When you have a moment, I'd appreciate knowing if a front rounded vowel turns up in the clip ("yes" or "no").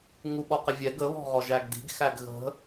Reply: no